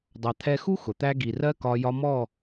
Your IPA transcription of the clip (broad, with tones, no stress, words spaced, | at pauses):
dˤɑ˨t̪ʰɛ˧xu˦ xʊ˨t̪æ˦ ɡi˨rɜ˦kɒ˧ jɒ˧mɔ˦˨